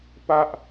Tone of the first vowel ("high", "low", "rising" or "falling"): high